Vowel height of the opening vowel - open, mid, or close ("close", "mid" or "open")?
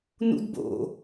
close